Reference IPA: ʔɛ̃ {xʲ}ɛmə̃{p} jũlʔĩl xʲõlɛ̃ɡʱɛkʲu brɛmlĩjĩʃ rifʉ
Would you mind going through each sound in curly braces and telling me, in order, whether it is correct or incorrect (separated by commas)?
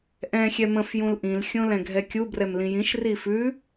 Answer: correct, incorrect